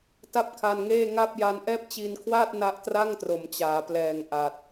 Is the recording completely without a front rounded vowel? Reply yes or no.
yes